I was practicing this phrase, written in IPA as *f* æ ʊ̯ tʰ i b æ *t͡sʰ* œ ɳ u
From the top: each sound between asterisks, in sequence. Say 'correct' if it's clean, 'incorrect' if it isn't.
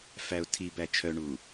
correct, incorrect

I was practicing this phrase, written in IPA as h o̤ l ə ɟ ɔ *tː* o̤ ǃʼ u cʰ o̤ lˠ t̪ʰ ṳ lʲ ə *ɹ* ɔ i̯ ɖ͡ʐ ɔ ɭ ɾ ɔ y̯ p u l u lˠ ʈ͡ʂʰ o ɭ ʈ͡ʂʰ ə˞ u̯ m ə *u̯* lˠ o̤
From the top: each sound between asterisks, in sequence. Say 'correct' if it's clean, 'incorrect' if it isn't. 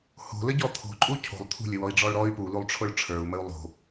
incorrect, incorrect, correct

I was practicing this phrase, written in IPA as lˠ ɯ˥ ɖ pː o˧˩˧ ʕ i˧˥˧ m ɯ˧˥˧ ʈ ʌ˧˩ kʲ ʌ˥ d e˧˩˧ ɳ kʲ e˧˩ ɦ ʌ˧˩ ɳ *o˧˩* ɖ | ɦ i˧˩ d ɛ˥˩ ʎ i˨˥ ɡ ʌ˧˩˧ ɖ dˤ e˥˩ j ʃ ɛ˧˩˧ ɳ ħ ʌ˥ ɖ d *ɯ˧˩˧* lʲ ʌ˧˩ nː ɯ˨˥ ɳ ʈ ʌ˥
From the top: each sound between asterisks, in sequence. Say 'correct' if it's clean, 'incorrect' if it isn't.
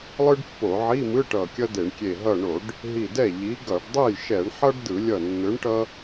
incorrect, correct

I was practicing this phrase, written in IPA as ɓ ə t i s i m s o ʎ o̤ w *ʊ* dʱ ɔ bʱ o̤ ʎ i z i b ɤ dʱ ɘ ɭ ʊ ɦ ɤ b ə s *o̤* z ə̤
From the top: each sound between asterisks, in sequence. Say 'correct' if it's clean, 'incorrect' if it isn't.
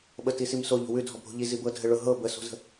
incorrect, correct

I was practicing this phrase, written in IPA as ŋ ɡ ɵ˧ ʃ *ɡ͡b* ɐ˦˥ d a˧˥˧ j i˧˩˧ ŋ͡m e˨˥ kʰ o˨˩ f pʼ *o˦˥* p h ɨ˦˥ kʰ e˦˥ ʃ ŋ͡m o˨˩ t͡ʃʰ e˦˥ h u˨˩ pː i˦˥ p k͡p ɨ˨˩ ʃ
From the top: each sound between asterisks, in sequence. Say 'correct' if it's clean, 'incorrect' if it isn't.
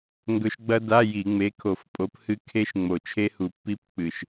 correct, incorrect

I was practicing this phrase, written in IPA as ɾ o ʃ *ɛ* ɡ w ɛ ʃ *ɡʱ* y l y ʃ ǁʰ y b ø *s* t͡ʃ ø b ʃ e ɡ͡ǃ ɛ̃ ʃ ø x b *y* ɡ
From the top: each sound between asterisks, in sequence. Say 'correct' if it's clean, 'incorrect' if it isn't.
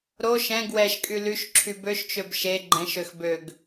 incorrect, incorrect, incorrect, incorrect

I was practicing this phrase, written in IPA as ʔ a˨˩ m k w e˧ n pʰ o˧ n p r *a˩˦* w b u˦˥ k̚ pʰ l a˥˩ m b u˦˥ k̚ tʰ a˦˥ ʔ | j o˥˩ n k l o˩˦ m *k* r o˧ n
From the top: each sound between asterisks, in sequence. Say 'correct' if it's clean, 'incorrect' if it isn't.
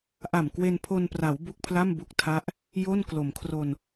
correct, incorrect

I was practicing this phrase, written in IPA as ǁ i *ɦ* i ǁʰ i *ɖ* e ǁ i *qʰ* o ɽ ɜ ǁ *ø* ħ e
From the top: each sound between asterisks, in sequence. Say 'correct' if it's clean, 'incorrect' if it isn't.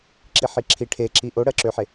incorrect, incorrect, incorrect, correct

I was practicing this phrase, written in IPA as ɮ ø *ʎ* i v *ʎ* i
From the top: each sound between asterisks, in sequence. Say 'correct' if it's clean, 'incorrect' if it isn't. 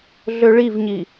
incorrect, incorrect

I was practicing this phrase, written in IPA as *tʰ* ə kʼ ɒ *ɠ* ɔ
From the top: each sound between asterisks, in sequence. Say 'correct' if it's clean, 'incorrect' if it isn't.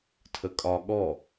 correct, correct

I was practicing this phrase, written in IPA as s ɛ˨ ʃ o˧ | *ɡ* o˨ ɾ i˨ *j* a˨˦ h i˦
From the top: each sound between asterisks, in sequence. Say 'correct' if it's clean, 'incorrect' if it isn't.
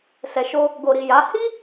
correct, correct

